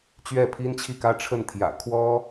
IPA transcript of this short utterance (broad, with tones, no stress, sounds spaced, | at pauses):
t͡ɕ ɥ ɛ˥˩ pʰ i˥ n t͡ɕʰ i˥˩ k ä˥ ʈ͡ʂʰ ə˥˩ n t̪ʰ j ä̰˨˩ kʰ w ɔ˥